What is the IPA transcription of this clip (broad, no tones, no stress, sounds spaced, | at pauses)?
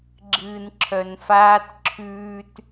ɡ͡ǁ ɨː n ǁʰ œ n f aː t ǁʰ ʉː t